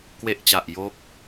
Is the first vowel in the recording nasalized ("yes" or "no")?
no